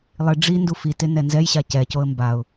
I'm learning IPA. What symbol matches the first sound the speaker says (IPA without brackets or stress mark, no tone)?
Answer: lˠ